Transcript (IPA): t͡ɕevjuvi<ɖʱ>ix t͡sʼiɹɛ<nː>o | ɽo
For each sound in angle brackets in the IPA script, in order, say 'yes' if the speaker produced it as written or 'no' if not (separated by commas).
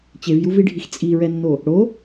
yes, yes